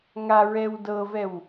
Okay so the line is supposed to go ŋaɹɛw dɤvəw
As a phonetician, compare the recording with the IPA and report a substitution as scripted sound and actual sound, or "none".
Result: ə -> ɛ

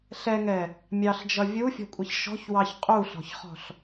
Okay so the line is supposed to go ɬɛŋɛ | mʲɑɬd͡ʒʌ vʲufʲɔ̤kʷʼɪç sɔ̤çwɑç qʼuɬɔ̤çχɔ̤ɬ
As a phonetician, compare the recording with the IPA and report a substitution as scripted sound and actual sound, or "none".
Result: s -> ʃ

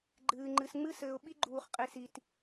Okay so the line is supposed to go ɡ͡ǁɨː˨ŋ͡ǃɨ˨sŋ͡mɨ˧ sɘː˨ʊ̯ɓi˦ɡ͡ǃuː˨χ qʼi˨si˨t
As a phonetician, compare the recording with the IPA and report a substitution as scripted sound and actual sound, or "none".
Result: ɡ͡ǁ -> ɡ͡ǃ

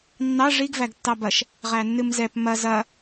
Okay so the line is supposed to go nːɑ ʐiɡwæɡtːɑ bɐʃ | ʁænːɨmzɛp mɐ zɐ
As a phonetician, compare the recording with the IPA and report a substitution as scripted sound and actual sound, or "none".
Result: w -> v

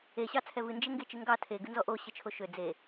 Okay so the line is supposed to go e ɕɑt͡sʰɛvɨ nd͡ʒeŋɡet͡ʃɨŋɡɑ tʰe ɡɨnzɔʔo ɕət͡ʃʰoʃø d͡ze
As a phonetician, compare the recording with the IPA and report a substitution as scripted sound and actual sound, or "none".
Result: none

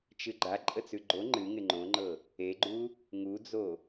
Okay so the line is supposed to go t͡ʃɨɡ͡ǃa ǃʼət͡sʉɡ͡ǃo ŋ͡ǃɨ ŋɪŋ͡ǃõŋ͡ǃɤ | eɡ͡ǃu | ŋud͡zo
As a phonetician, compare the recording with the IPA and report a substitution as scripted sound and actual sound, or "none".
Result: none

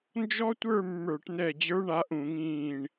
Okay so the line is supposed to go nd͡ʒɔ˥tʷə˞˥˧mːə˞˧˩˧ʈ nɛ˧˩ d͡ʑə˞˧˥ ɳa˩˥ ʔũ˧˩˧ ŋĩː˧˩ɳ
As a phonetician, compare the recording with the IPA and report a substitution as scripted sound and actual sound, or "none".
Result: none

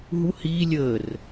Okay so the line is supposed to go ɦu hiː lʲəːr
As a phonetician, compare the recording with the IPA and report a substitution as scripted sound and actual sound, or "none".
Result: none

